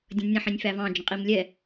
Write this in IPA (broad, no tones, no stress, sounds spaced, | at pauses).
dʲ ə̃ nʲ ə̃ ħ ĩ nʲ f æ v ɑ̃ d͡ʒ ə̃ qʼ i m lʲ ɛ